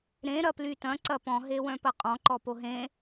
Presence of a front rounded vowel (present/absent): present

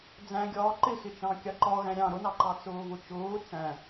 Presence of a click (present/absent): present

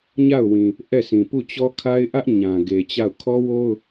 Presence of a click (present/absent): absent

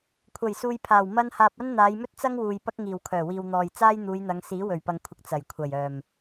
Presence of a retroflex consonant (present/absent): absent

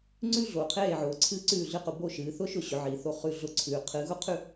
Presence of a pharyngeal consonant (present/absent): present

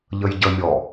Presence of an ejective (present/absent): absent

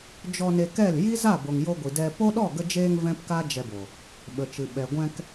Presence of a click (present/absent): absent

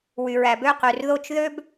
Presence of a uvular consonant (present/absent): present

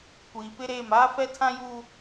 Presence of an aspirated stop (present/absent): present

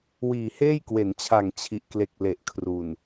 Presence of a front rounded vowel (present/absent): absent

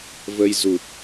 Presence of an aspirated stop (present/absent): absent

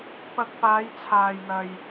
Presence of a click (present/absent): absent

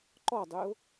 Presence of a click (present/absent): present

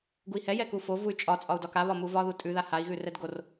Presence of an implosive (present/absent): absent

